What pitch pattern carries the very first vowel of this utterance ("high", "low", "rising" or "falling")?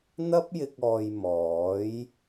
high